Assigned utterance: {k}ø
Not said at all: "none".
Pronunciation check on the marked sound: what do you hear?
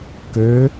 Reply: k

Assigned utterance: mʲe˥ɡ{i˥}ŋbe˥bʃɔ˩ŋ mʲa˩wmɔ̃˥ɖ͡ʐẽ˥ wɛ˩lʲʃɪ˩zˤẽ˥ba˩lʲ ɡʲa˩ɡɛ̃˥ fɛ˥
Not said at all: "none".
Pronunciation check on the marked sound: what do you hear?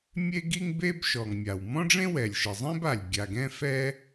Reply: i˥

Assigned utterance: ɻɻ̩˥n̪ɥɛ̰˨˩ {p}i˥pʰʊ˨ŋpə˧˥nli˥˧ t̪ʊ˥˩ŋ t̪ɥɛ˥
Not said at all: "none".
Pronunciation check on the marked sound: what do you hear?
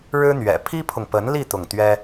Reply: pʰ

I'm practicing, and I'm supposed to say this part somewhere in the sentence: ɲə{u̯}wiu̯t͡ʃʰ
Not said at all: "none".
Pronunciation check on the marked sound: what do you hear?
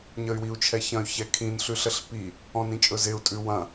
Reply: y̯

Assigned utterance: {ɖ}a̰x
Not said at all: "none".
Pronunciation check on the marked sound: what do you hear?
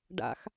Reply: ɖ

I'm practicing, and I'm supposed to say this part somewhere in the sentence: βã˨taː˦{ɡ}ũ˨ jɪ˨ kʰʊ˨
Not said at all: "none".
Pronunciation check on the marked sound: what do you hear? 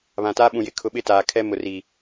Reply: ɓ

